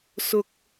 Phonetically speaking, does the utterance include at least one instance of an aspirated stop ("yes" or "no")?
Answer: no